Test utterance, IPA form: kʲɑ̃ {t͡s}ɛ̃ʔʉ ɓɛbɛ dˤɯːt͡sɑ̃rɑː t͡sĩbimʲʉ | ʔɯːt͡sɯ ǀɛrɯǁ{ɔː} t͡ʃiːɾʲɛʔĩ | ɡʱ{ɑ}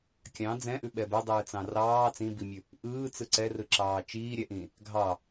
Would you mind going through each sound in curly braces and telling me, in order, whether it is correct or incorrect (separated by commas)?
incorrect, incorrect, correct